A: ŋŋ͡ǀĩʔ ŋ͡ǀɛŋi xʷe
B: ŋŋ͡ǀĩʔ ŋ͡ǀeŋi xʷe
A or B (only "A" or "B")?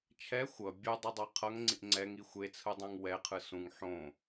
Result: A